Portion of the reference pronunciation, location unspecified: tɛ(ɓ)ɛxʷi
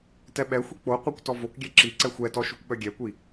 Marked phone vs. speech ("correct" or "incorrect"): correct